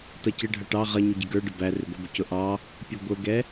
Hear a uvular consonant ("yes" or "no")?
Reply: yes